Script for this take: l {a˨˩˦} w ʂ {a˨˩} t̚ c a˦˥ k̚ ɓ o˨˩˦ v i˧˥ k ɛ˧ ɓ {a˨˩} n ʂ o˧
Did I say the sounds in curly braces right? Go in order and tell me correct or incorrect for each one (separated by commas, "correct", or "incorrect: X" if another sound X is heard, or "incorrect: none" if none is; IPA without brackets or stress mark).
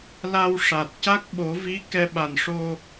incorrect: a˧, correct, correct